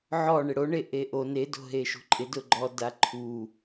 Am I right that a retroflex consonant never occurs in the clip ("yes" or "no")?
no